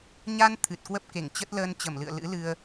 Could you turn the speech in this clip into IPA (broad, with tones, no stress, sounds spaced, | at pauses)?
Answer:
ɲ a˧ n t̪ʰ ɨ˨˩ t̚ k w ə˦˥ p̚ k e˧˩ ŋ t͡ɕ ə˦˥ t̚ l əː˧ n t͡ɕ ə˧˩ m l ɨ̰˧˨ ə̯ l ɨ̰˧˥ l ɨ˧ ə̯